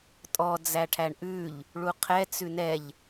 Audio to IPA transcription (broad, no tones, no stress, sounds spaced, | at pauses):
tʼ ɔ d͡z æ ʈʰ æ ɳ ʔ ʉ ʎ | ɭ u qʰ ɛ t͡s ʉ n ɛ ʎ